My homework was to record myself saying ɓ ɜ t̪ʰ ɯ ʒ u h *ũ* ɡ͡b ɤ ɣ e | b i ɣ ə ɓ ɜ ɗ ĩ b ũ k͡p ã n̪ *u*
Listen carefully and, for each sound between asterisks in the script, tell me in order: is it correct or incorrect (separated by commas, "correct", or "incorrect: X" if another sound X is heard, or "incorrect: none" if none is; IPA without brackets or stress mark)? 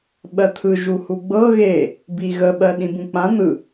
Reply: incorrect: u, incorrect: ɯ